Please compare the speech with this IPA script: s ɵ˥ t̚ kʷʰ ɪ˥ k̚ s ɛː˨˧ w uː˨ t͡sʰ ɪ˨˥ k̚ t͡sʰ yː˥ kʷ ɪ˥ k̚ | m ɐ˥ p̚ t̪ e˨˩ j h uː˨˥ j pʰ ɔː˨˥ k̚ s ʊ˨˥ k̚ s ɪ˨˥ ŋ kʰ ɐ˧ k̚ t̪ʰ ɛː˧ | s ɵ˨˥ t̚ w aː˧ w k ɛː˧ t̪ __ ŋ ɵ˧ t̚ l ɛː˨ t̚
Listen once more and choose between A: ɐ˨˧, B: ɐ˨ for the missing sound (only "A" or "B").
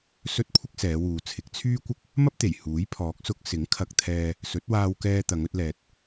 A